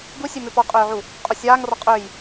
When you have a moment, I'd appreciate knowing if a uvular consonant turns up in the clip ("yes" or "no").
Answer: yes